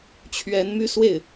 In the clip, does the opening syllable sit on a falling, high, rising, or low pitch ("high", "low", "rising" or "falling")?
rising